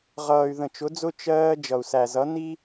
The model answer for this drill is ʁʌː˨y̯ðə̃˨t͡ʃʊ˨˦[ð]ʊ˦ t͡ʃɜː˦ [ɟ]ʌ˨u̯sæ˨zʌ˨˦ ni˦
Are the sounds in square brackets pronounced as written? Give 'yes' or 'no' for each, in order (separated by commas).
no, no